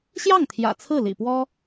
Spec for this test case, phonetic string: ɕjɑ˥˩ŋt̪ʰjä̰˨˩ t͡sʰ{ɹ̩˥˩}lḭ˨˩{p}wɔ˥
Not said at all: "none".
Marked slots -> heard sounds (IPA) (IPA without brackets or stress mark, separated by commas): ɹ̩˥˩, p